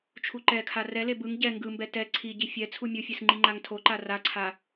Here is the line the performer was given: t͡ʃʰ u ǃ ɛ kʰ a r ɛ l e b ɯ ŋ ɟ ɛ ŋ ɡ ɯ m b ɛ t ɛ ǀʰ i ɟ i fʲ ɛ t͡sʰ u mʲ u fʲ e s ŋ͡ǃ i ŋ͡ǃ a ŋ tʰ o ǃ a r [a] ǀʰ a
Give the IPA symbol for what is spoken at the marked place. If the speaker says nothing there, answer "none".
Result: a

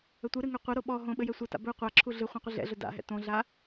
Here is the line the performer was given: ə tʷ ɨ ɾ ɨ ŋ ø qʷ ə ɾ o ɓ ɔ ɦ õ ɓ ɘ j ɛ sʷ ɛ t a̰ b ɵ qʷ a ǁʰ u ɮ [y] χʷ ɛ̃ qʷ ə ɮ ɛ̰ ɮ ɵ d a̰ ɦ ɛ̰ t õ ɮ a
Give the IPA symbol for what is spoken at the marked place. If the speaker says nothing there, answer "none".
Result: ɨ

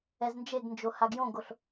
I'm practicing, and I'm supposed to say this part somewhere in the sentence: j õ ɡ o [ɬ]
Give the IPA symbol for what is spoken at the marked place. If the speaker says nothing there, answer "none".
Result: ɬ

